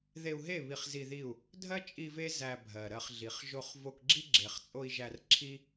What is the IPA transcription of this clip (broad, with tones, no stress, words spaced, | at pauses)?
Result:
ðe˧u̯ɦe˦˨ βi˧χzi˧ði˦˨u̯ | dʱɜ˦t͡ʃʼi˧ ve˦ zæ˧bʱɜ˨ɾɜ˧χɮi˨χ ʒo˧χ vo˧kɡ͡ǁi˦ ɡ͡ǁe˨χt͡sʼo˧i̯ ʒæ˧rǁʰi˦